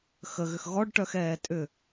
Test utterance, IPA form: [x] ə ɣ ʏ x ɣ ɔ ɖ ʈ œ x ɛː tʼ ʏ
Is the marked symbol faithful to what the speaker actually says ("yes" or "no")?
yes